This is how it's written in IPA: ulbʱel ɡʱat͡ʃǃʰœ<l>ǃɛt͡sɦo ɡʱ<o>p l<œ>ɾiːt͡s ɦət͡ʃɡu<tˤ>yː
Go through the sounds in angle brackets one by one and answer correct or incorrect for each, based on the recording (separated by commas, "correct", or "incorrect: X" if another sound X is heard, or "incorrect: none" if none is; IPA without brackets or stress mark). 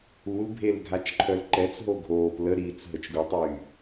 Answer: correct, incorrect: oː, incorrect: ə, correct